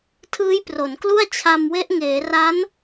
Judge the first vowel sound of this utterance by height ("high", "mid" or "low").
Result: high